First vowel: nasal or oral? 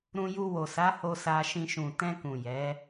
nasal